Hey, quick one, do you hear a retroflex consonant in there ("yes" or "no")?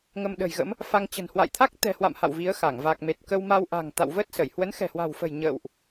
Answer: no